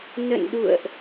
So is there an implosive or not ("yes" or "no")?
yes